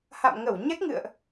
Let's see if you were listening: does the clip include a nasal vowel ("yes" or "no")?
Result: no